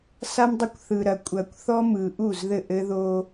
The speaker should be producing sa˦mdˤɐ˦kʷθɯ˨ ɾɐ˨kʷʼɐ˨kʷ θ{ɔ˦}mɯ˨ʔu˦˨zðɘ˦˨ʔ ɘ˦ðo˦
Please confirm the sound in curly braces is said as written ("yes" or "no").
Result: yes